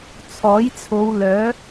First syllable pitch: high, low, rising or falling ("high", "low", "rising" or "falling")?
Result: rising